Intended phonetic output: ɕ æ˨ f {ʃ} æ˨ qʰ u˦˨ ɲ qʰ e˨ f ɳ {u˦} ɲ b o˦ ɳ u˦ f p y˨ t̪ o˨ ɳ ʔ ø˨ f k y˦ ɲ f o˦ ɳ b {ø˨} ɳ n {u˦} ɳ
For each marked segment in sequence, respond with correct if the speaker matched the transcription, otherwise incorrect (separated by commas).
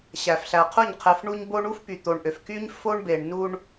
incorrect, correct, incorrect, correct